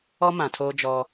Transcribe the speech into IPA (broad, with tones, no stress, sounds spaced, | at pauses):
ɔ˦ m ã˨ tʰ oː˦ d͡ʒ ɔ˦